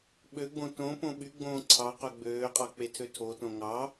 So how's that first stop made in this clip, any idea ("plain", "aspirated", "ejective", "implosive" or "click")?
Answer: implosive